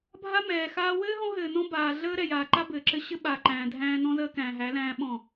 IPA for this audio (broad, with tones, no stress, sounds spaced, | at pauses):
bʱ a˦ m ɛː˨ x aː˦ w ɘː˦ ɦ ɔ̃˦ ɦ ɘː˨ n ɔ̃˦ b aː˨ ɮ əː˦ ɾ ɛ˨ j aː˨ ǃ a˦ b ɘː˨ ǁ ɘ˦ ɕ ɘ˦ ɓ aː˨ ǃ æ̃ː˨ dʱ æ̃ː˦ n ɔ̃˦ z əː˦ k æ̃ː˨ ɦ æ˨˦ l æ̃ː˦ ɓ ɔ̃˦˨